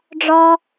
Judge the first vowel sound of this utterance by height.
low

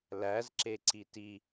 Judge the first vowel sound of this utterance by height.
low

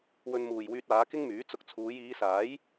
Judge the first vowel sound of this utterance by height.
mid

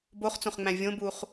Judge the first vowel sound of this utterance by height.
mid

